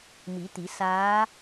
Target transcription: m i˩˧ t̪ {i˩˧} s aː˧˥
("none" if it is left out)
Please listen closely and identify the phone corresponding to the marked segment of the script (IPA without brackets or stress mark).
i˩˧